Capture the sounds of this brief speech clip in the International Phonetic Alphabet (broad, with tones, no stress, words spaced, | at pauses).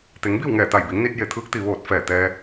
t̪e˩˧ŋbi˥˨w ŋɛː˧˩t̪a˧˩jbi˩˧ŋni˧t̚ je˧˩t̪ʰɯː˧˥k̚t̪i˩ ʋoː˧˩t̚fɛː˧˩ t̪ɛː˧